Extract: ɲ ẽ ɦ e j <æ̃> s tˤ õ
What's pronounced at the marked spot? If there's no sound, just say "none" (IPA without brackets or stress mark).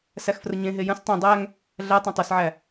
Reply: ə̃